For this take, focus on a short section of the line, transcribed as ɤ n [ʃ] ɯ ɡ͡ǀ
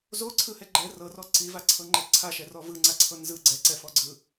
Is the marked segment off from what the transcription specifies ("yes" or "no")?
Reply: yes